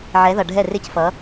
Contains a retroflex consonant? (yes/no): yes